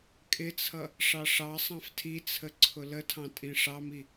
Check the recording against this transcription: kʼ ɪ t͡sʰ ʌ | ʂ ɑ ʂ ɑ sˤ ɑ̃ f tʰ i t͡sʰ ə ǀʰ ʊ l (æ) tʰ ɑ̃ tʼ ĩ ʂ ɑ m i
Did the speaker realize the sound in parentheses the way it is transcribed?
no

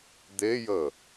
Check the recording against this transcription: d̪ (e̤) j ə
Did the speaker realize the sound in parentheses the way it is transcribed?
no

